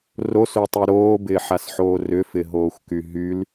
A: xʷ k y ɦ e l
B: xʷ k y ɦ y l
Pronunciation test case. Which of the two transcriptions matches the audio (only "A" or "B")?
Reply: B